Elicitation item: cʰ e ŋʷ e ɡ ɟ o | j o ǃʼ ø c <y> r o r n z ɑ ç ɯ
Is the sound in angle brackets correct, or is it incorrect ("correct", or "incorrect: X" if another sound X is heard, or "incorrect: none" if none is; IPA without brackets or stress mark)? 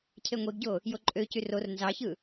correct